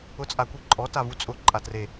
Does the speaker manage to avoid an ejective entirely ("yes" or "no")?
no